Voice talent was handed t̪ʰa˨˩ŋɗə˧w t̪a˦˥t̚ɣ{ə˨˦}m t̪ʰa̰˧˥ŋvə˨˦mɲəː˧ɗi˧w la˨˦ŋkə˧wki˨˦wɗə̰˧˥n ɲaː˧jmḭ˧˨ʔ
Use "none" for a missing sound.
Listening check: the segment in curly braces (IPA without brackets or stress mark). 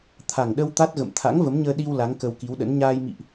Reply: ə̰˧˨